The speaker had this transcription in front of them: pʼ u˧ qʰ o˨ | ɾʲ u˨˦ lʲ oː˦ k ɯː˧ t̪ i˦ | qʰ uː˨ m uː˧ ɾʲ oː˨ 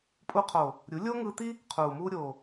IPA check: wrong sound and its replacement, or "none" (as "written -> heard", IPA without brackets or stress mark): k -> ŋ